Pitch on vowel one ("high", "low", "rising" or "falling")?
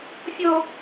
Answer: high